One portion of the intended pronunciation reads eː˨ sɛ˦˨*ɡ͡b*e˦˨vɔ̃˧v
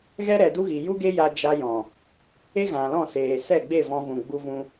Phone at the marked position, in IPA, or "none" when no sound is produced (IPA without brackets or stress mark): ɡ͡b